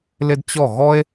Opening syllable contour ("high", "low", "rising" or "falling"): high